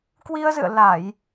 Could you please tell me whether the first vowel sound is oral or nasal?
oral